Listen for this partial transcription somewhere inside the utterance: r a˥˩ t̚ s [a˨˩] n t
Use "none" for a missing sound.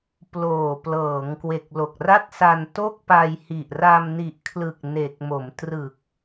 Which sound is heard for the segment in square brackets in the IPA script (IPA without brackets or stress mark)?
a˧